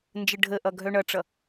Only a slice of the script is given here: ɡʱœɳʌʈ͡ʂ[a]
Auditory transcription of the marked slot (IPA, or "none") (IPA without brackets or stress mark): ʌ